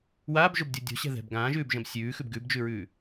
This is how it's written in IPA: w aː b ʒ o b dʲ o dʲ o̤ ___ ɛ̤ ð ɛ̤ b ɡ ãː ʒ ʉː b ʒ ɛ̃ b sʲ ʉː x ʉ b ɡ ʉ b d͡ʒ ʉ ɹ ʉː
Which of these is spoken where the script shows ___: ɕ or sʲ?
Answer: ɕ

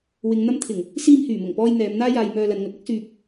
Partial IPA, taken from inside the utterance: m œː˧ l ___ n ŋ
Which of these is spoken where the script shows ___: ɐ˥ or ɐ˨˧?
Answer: ɐ˨˧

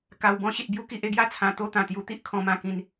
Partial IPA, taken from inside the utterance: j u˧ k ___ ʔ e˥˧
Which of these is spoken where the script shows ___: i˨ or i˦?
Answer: i˨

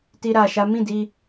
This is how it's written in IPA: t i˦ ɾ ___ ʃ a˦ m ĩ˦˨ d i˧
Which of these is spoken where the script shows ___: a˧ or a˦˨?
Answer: a˧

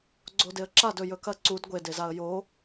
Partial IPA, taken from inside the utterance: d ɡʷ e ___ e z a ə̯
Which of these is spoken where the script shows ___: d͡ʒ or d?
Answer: d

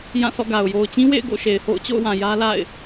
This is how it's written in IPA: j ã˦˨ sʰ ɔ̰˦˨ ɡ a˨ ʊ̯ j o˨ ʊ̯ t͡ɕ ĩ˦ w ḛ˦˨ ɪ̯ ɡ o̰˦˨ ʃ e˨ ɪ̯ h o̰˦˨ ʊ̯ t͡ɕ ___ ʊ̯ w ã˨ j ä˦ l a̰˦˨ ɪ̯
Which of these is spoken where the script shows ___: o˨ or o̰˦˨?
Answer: o̰˦˨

